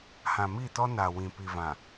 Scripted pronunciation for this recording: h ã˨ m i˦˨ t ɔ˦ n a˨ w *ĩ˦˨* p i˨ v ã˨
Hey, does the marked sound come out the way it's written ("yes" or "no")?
no